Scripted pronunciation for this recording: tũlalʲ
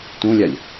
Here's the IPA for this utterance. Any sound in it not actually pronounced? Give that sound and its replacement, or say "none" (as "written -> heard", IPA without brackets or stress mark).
l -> lʲ